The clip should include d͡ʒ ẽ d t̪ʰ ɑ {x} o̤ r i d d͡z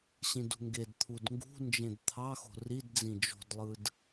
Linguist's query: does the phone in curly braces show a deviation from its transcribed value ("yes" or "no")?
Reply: no